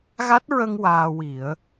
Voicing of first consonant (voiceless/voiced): voiced